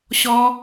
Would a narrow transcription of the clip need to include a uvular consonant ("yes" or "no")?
no